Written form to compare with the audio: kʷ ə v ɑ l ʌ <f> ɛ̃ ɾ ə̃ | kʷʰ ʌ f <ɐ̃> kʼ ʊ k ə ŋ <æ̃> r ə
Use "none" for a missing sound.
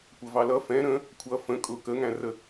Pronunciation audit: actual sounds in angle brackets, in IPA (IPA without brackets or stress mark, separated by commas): f, ə̃, æ̃